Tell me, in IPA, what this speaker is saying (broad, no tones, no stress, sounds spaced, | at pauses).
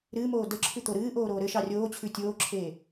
ɾ ɨː m oː d ə ǁʰ ʉ t̪ o ɾ ɨː ʔ oː ɾ oː ɾ ɘ ʃ ɑ rʲ oː t͡ɕʰ ʉ tʲ oː ǁʰ eː